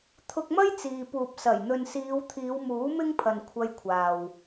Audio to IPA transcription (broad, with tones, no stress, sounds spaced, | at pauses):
t̪ʰ ʊ˧ k̚ m ɐ˥ j t͡s iː˨ p uː˨ p̚ s ɐ˨˩ j n̪ ɵ˨ n s iː˨˧ w t̪ʰ iː˨˧ w m uː˨˥ m ɪ˥ ŋ pʰ ɐ˨ n kʷʰ ɐ˧ j kʷʰ aː˨ w